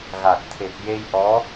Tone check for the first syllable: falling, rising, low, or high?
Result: low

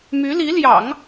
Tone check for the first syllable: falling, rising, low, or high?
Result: rising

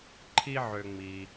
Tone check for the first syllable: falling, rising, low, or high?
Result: high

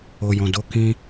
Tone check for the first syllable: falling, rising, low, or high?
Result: low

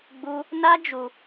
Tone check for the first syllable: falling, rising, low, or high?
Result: high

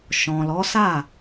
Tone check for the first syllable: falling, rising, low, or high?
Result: low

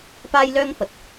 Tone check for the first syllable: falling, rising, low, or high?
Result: high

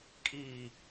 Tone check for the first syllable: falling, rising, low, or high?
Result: low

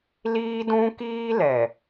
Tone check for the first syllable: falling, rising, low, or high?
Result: high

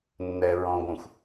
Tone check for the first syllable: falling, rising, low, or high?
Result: low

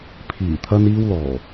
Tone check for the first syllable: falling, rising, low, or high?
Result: low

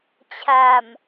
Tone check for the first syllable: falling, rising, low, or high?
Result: low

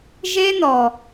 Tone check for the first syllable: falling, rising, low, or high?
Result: high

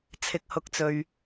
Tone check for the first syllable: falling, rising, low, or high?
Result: low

